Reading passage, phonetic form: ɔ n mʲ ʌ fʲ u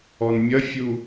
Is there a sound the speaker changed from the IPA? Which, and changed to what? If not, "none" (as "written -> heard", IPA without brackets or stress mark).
none